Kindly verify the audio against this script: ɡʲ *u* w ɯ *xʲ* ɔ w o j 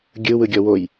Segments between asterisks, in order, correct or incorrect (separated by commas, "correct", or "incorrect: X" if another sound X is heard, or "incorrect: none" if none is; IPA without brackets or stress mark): incorrect: ɯ, incorrect: ɡʲ